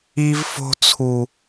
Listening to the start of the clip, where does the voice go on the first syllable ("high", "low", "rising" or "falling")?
high